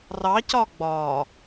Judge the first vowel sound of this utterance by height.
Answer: low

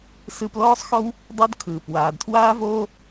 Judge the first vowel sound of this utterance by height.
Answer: high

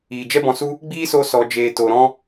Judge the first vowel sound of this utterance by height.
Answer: high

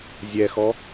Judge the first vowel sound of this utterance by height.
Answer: mid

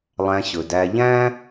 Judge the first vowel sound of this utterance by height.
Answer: low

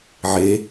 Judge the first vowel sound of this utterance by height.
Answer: mid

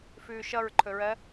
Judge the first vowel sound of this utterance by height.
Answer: high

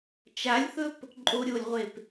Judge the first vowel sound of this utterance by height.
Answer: low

